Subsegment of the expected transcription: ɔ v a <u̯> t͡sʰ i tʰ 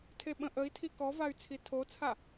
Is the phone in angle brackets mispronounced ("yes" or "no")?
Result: yes